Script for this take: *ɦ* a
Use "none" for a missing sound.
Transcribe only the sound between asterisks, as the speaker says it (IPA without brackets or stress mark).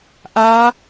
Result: ʔ